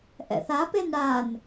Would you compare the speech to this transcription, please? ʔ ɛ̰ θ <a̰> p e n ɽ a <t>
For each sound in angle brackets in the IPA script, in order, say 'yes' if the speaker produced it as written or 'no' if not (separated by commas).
no, no